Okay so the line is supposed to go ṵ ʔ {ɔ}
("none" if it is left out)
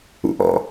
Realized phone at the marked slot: ɔ̰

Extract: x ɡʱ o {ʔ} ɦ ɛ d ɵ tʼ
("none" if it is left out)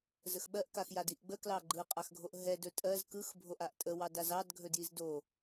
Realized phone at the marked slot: ʔ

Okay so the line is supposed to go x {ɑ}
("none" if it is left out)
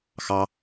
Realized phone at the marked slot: ɑ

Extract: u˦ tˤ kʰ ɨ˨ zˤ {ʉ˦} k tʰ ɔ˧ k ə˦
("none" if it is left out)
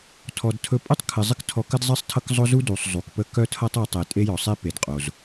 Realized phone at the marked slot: ɨ˦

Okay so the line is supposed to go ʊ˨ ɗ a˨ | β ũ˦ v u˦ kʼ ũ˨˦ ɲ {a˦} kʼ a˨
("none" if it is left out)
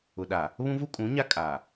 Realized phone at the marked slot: a˦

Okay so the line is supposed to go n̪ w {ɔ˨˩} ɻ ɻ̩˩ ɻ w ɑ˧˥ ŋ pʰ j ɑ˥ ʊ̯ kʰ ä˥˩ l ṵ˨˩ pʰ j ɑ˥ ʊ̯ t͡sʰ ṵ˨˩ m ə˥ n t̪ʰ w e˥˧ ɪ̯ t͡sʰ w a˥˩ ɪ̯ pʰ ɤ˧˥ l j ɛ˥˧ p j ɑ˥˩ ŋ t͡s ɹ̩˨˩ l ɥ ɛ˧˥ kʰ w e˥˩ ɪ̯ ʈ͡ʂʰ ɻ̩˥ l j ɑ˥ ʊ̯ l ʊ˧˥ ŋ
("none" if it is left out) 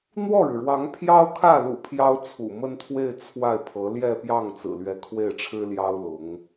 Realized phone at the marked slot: ɔ˥˩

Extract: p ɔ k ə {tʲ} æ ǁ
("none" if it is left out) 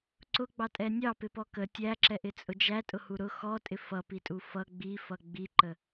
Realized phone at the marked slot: tʲ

